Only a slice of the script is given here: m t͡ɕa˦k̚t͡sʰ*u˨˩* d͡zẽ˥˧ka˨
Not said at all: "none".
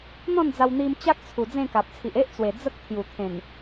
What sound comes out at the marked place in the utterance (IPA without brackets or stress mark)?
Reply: u˨˩